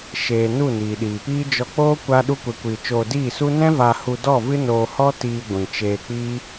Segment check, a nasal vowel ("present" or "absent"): present